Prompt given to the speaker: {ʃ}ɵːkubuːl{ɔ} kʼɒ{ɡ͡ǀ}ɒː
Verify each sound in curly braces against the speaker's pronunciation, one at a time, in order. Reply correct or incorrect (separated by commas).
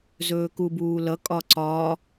incorrect, incorrect, incorrect